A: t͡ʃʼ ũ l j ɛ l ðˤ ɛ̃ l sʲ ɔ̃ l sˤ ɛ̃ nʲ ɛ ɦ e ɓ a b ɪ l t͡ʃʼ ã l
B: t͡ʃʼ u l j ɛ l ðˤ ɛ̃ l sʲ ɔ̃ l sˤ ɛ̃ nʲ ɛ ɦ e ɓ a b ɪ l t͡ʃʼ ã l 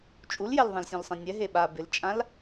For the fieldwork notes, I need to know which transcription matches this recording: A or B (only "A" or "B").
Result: B